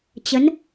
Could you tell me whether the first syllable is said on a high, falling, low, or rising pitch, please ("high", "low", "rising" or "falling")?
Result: rising